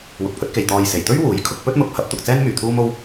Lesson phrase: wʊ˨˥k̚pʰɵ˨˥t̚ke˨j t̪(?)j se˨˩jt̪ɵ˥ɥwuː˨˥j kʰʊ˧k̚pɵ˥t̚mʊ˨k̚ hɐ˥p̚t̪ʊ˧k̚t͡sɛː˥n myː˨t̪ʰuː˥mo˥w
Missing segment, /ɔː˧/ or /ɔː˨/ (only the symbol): ɔː˨